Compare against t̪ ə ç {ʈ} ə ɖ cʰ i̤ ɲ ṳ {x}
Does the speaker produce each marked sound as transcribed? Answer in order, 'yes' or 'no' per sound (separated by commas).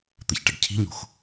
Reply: yes, yes